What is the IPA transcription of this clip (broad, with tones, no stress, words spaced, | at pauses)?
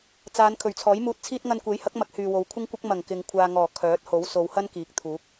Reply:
t͡saː˨˧n kʰɵ˨˩ɥt͡sʰɔː˨˥jmuː˧t̚t͡sʰiː˥t̚ ŋɐ˧nkʷe˨˥jhɐ˨˥k̚mɐ˨˥k̚ hyː˨wo˨˧wkʷʰɪ˥ŋkʷɐ˥k̚ mɐ˨˩ŋ kɪ˨ŋ kʷʰaː˨ŋɔː˨˩ kʰœː˨˥t̚ ho˨˥wso˨˧whɐ˥nkiː˨˥k̚ t̪ʰuː˨˥k̚